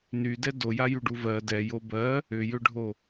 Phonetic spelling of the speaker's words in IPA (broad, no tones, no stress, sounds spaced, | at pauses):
n y d ɛ d o j a j y ɖ u v ɜ d ɛ j o b ɜ | ʏ j ʏ ɖʱ o